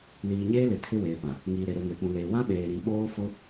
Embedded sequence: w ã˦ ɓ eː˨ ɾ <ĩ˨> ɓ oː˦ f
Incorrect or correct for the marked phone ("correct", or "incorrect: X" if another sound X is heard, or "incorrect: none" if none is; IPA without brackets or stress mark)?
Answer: correct